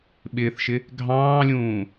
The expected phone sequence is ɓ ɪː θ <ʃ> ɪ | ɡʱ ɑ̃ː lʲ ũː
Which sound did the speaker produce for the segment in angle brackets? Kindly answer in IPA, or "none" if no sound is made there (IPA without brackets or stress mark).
ʃ